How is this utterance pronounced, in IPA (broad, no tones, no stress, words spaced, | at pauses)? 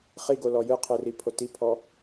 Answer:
χiɡo lɔjɯqʰɯri pʰotipʰɔ